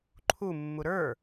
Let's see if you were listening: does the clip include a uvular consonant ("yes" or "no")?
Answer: no